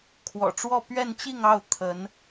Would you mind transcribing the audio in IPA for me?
kʰ w ɔ̰˨˩ ʈ͡ʂ w ɔ˥˧ p ɥ ɛ˥˧ n t͡ɕ i˥˧ ŋ ɑ˥˩ ʊ̯ t̪ʰ ə˧˥ n

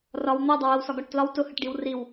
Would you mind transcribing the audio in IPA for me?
r ɒ w n̪ ɛ dˤ ʌ w ə w s ɒ ɡ ɒ ʈ t l ɒ w t ʊ h ə ʈ ɖ i w r i w

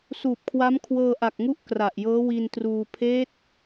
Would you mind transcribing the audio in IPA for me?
s uː˨˩ p̚ kʰ w a˦˥ m kʰ w ɤː˧ ʔ a˨˩ k̚ ŋ u˦˥ ʔ k r a˨˩ ʔ j ɤː˦˥ w i˧ n t r uː˧ pʰ eː˦˥ t̚

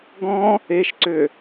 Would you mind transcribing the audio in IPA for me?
ɡ ɔ̃ | e ʃ ǀ ø

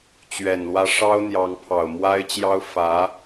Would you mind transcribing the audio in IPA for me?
t͡ɕ ɥ ɛ˨˩ n l w ä˧˥ ʂ ɑ˥ ʊ̯ n̪ j ɑ˧˥ ŋ pʰ ɑ˨˩ ʊ̯ m w a˥ ɪ̯ t͡ɕ j ɑ˥ ʊ̯ f ä˧˥

